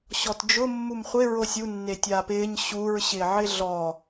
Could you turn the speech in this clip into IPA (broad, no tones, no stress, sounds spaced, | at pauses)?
ɕ ɔ t d͡ʒ ʊ mː u m χʷ ɪ ɹ o sʲ u nː e tʲ aː p ɪː ɲ ɕ u ɹ ɕ ɪː ʕ ɪ ɮ ɔ